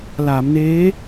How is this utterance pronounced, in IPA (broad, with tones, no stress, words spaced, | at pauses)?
laː˩˦mneː˦˥